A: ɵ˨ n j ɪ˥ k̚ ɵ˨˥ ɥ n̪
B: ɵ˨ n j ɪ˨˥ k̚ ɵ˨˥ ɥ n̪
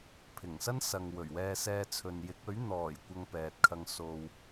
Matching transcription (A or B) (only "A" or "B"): B